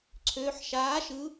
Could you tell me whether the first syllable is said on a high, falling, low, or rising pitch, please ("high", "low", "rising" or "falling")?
rising